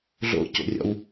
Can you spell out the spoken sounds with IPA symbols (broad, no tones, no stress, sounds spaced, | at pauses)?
ɮ o̰ c o̰ rʲ ɔ̰ w